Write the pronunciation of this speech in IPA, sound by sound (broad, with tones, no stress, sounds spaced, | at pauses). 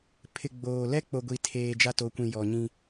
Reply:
pʰ ɪ˨ ɡ͡b oː˨ l ɛ˦ k͡p o˨ ɡʷ i˨ tʰ eː˨ d͡ʒ a˦ t o˨˦ kʷ ĩ˨ j ɔ˨ ɲ ĩ˦